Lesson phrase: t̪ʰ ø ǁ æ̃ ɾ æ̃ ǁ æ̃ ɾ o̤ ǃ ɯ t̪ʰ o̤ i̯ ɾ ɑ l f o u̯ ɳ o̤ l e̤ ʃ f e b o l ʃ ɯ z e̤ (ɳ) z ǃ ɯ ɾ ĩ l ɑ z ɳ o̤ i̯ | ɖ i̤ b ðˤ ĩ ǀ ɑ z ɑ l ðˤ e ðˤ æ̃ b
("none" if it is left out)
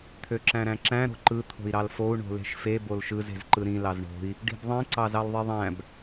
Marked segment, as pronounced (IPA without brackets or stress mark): none